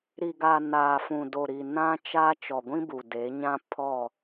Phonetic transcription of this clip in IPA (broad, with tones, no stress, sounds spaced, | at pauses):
ɾ i˨ ɡ a˨ n aː˨ f ũ˨ d o˨ ɾ i˨ n ã˦ t͡ʃ a˦ t͡ʃ ɔ˨ ɡʷ ĩ˦ b u˨ d e˨˦ ɲ ã˦ pʰ ɔ˦˨